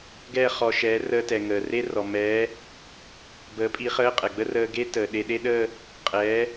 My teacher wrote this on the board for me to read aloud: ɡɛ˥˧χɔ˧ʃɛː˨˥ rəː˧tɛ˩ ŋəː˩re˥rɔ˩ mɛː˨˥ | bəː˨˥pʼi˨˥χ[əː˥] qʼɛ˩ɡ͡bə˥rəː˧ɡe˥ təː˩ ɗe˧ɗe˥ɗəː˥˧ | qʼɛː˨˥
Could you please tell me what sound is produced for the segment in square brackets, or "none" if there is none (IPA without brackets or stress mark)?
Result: əː˧˥˧